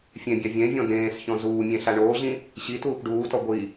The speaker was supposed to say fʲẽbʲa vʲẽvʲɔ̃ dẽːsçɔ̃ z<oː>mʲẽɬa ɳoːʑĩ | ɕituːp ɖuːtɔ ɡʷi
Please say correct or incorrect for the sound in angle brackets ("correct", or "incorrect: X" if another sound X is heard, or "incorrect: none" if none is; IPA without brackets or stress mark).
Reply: incorrect: uː